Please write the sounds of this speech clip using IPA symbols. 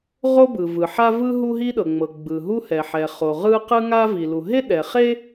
ʁo˥bɯ˩vɯ˩ ħa˥vɯ˥ ɦu˥ɦi˥ɗɤ˩ ŋ͡mɤ˩ ɡ͡bɯ˩ɦu˥hɛ˩ ħɛ˩χo˩ ʁɯ˥ qɯ˥ŋa˥vi˩lu˩ ɦe˥ɗɛ˩χe˥

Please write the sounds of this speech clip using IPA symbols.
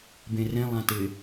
bẽrẽ lˠãtɪ

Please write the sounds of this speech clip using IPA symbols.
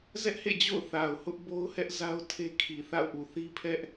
zɛ˦ʔhḛ˦˨d͡ʑo̰˦˨ʊ̯ θa˨ʊ̯ hʊ˦ʔ bo˦ʊ̯hɛ˦ʔza˦ʊ̯ tʰe˦kʰi˨ θa̰˦˨ʊ̯ʔu˨ θi˦pʰɛ˦ʔ

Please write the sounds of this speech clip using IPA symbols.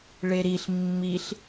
ɭeɾiɬ mːiɬ

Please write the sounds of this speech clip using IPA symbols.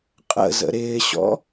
qʼə̰zə̰ ɾɪːɕɔ̰

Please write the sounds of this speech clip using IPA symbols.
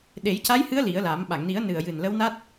ɗe˨˩˦jca˧˥jhɨ˧˥ə̯ li˨˩˦ə̯la˨˩˦m ɓa˨˩˨ŋni˨˩˦ə̯nɨ˨˩ə̯jɨ˨˩n lə˧˥wna˦˥t̚

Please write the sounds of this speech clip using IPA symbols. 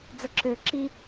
d͡zəǁø ǁi

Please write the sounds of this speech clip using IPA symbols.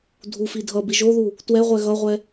dʱufi dʱʌbi ʒoðu | twɛʁʷɛ ɣʌʁʷɛ

